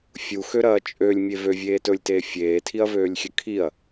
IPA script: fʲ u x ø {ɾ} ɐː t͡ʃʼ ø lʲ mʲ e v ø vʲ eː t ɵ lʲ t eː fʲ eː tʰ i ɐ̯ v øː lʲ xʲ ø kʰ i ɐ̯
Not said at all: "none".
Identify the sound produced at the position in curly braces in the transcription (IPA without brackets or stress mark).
ɾ